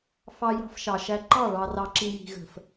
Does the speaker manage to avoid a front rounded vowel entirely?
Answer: yes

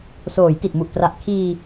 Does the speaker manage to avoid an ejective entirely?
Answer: yes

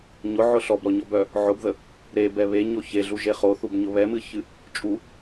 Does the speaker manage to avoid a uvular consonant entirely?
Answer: no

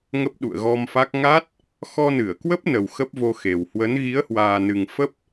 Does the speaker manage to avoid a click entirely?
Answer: yes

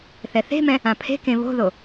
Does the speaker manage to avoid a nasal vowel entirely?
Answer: no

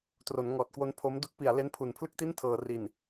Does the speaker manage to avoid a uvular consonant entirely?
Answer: yes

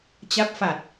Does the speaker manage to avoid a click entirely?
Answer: yes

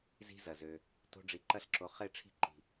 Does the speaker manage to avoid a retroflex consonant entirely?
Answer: no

